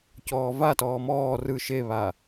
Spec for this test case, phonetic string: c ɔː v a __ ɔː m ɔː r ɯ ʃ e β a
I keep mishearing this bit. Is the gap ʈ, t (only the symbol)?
t